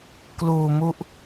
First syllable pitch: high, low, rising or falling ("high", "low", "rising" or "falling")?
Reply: low